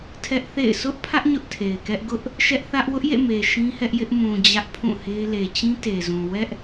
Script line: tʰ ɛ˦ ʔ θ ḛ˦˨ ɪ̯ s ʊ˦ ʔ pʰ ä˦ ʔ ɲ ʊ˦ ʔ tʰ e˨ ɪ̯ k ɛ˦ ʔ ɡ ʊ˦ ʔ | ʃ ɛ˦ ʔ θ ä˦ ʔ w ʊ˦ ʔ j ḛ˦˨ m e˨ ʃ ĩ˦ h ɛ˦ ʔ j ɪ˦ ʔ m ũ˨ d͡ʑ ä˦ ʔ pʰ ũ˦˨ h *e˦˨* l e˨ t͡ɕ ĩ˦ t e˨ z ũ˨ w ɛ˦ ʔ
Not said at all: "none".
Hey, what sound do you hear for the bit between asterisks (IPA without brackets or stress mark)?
e˦